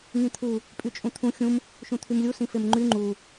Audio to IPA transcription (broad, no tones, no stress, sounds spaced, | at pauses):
ŋ ĩ t̪ʰ u | pʼ y t͡ʃʼ ũ t̪ʰ ũ xʲ ũ m | ʃ ũ t̪ʰ y m lʲ u s ĩ f e m ŋ͡ǃ y ŋ͡ǃ u